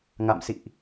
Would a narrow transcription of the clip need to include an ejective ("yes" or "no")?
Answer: no